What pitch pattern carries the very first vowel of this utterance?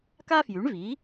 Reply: high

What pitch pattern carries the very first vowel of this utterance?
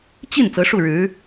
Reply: falling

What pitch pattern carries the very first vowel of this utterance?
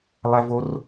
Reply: high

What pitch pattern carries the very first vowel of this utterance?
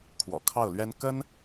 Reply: low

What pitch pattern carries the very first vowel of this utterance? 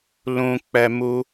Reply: low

